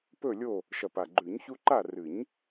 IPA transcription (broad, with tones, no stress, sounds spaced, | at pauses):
p ɵ˦˨ lʲ o˦˨ | ʃ ɐ˨˩ p a˨˩ ɡ͡ǃ ʉ˨˩˦ ɲ ç u˦ ǃ a˦˨ r ɨ˨˩˦ ɲ